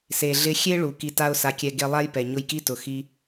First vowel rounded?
no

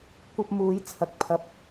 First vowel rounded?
no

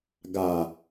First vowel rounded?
no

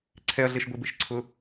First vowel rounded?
no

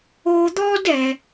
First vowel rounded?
yes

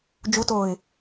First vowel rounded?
yes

